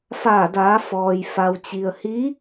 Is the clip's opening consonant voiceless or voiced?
voiceless